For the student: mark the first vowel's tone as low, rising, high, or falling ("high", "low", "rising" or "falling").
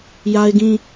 high